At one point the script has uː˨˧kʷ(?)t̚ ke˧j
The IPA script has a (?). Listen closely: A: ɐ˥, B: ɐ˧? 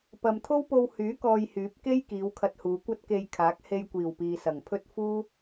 A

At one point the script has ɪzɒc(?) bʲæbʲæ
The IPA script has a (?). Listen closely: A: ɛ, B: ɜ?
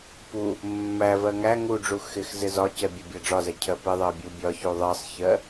A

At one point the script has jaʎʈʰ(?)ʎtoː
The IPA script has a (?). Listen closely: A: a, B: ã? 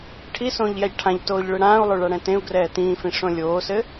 B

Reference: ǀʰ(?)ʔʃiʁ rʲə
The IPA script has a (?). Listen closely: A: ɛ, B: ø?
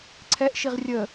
A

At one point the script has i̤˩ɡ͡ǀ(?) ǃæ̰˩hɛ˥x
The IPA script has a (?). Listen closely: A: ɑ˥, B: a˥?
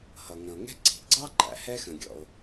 A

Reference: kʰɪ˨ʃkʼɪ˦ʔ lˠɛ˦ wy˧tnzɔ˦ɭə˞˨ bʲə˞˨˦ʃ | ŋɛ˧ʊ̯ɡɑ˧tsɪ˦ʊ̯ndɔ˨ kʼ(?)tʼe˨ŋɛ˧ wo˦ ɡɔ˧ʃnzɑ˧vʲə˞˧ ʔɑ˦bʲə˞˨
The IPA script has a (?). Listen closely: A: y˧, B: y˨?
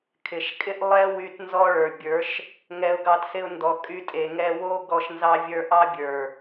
A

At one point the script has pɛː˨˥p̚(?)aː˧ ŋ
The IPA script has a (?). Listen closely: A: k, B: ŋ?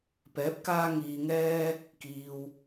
A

